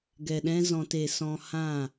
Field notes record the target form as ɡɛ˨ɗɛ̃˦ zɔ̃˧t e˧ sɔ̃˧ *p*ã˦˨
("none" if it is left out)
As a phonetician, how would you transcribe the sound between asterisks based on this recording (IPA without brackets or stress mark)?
h